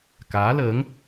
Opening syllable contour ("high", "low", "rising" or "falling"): rising